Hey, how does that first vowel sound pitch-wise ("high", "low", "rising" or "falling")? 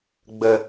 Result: low